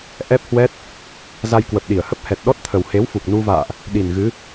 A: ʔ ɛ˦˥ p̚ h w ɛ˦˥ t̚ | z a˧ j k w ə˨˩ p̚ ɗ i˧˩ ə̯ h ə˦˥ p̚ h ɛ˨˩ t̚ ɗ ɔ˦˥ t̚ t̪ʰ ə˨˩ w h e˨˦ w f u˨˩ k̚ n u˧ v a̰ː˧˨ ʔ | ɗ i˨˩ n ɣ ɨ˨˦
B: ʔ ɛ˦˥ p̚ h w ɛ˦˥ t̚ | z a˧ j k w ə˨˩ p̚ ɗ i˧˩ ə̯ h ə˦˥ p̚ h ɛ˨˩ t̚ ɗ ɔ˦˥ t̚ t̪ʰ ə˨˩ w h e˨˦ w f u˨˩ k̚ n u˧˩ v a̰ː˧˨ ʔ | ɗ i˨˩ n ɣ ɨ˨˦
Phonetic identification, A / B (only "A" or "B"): A